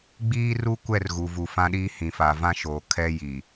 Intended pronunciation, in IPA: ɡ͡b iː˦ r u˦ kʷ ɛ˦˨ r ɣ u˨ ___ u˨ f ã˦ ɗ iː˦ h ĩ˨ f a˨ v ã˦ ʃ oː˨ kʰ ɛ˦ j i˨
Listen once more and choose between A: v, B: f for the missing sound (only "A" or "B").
A